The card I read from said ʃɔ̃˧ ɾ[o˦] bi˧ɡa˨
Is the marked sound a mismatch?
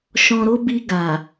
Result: no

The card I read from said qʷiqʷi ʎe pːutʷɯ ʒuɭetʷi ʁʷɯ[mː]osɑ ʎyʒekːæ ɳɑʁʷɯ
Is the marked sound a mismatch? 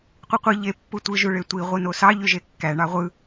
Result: yes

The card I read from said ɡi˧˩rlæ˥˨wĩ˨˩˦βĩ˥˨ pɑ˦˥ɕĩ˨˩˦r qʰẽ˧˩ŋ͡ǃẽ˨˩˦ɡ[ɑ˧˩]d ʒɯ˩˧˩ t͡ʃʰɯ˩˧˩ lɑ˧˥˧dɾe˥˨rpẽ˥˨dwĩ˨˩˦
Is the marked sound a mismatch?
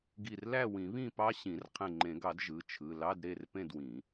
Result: yes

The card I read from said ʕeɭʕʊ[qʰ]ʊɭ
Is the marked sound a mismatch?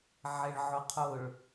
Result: no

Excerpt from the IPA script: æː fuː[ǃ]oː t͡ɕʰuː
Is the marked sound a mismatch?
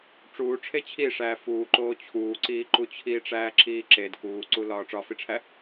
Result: no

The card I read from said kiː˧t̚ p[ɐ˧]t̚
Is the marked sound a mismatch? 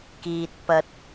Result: no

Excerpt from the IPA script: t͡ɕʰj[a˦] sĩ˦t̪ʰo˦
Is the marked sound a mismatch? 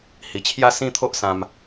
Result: no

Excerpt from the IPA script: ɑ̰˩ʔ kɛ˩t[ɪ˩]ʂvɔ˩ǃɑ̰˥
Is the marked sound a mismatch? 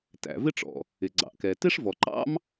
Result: yes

